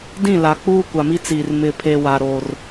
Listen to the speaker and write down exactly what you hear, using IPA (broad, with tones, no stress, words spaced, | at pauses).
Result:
dĩ˦˨la˨ k͡puː˦kʷa˨mi˦t͡siː˨r mɪ˨pʰe˨wa˨ ɾo˦r